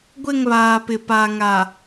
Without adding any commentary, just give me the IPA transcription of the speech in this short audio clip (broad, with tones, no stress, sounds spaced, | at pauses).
ɡʷ ɪ˦˨ ŋ β aː˨ p ɪ˨ p a˨ ŋ a˨